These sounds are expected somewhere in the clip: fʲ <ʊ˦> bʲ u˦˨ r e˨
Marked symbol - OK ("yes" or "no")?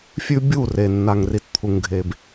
no